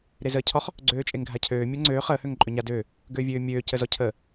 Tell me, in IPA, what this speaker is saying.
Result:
ɾ e z əː cʰ ɔ χ | ɡ͡ǀ øː t͡ʃʼ e ŋ ɡʱ a cʰ øː mʲ əː ŋ͡ǀ øː χ əː h ø ŋ ǃʼ ø ɲ a d ø | ɡ øː vʲ øː mʲ øː c ə z ɔ cʰ əː

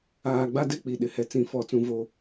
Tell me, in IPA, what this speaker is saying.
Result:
aː˨ ɡ͡b a˦ d ɛ˦ k͡p i˨ ɗ ɪ˨ h ɛ˨ t͡s ĩ˦ f ɔ˦˨ t͡s ũ˦ v o˦

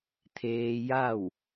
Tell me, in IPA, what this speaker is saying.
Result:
t̪ʰ eː˧ j a˥˨ w

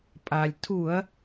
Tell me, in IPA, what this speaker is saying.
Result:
pʼ a˩ lʲ tʰ u˧˩˧ ɐ̯

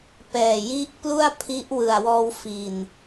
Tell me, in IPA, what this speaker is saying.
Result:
p ɛː˨˩ j i˦˥ ʔ p l u˥˩ a̯ pʰ i˦˥ ʔ w ɯ˨˩ a̯ w ɔː˧ w f i˨˩ n

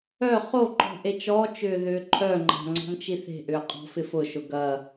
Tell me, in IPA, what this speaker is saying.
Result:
œ χ o ǃ ɔ̤ ʔ e t͡ʃ ɔ t͡ʃ ʏː ð ʏː ǃʰ œ ŋ͡ǃ a̤ ŋ͡ǀ ɔ̤ m t͡ʃ i θ e̤ ʔ ʏː qʼ ɔ̤ f ɪ f ʊ ʃ ʊ ɡ ɐ

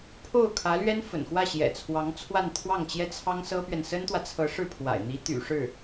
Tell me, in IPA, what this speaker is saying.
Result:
pʰ o˥˩ ʊ̯ kʰ ä˧˥ l ɥ ɛ˥ n f ə̰˨˩ n x w ä˥˩ ɕ j ɛ̰˨˩ t͡sʰ w ɑ˧˥ ŋ t͡sʰ w a˥˧ n t̪ʰ w ɑ˥˩ ŋ t͡ɕ j ɛ˥ t͡sʰ ɑ˥ ŋ s ɤ˥ p ɥ ɛ˨ n s ə˥ n t̪ w ä˨ t͡sʰ ɤ˧˥ ʂ ɻ̩˥˩ pʰ w a̰˨˩ ɪ̯ n̪ i˧˥ t̪ y̰˨˩ ʂ ɻ̩˥˩

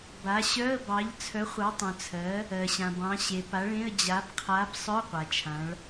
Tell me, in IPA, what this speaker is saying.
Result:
b a˨˥ ɕ œ˧˥˧ ə̯ b ɑ˨˥ ʎ t͡sʰ œ˨˥ χʷ ɑ˨˥ tˤ œ̃˨ t͡sʰ ɜ˨˥ | ɜ˨ ɕ ã˨ b ɑ̃˨˥ ɕ e˨ p a˨˥ ɭ ẽ˧˥˧ ə̯ d͡ʑ a˨˥ b qʰ a˨˥ b sˤ œ˧˥˧ qʷ a˨ t͡ʃʰ ã˨˥ ɭ

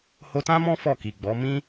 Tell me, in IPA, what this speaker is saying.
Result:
h o˧ t ã˦ m ɔ̃˦ f ɔ˦˨ k i˨ ɡ͡b ɔ˨˦ m ĩ˦

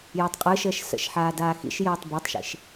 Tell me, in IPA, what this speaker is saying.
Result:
j œ tˤ qʼ ɯ ʃ əː ʃ s ə̰ ʃ ħ aː d aː x ḭ ʃ j əː tˤ b ɔ tˤ ʃ ḭ ʃ

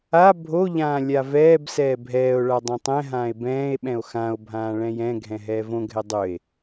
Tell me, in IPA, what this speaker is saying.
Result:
a bʱ o ʎ ãː lʲ a v ɛː b s ɛː bʱ ɛː o̯ ɭ a dˤ ɛ̃ tˤ ɛ̃ ɦ ãː e̯ b ɛ̃ː e̯ ɓ ɛ̃ o̯ x ã o̯ bʱ ãː ɭ ɛ̃ j ɛ̃ ɡʱ ɛ̃ ɦ ɛː v õ ɡʱ ɛ dˤ ɵ e̯

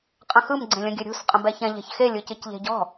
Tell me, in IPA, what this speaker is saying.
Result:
qʼ ə̃ x ɯ m ɡ͡ǀ ẽ lʲ ə̃ ɡʲ ɘ ɾʲ ṳ s qʼ ə̃ b ɛ ç ɛ̃ ʎ ɛ̤ ç x e lʲ ɯ c ɯ c ʎ e̤ ɟ ɔ̤

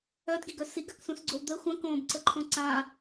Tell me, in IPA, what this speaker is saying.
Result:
œ d ɡ i ɡ œ s i ɡ a k s ũ s ɡ͡ǀ o w d̪ ə xʷ ə̃ k õː b ǀ ə ǃʰ õ ǀ ã

